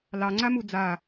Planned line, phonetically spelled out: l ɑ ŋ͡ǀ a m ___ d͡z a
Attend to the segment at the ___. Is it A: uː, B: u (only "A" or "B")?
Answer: B